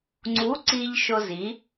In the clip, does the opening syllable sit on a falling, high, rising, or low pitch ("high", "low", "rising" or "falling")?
rising